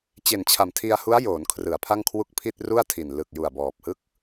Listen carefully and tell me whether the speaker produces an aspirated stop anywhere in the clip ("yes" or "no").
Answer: yes